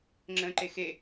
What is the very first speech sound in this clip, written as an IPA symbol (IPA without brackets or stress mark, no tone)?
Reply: ŋ͡ǁ